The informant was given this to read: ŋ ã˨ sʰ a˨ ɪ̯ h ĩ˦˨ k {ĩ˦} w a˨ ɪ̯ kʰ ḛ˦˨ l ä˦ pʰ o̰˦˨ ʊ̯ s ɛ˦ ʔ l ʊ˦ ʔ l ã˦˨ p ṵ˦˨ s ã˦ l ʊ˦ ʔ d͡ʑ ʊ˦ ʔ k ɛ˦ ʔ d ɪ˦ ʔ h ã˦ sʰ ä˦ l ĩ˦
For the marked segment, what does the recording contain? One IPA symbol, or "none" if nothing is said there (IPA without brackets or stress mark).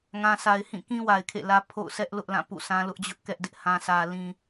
ĩ˦